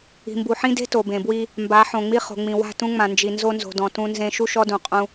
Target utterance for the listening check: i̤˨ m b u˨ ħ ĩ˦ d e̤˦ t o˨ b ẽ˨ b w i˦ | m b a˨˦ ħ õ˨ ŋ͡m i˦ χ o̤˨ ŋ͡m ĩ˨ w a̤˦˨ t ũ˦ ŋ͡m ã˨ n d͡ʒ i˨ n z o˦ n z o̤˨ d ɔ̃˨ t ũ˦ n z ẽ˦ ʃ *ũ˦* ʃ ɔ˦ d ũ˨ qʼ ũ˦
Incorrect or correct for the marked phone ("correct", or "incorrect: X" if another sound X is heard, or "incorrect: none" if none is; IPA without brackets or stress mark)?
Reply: incorrect: u˦